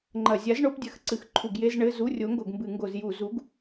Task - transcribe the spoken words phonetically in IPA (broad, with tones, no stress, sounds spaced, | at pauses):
ŋ͡ǃ ɐ˧˩˧ zʲ a˨˥ z ɳ o˨˥ p dʲ ɐ˨˥ x ǀ ɨ˧˩˧ x ǃʰ u˧˩˧ ɡ j e˧˥˧ z ɳ ɘ˧˥˧ z u˧˥˧ rʲ o˨˥ ŋ ɡ o˧˩˧ ɡ m b ɨ˧˩˧ ŋ ɡ o˧˩˧ z j u˧˩˧ z u˨˥ ɡ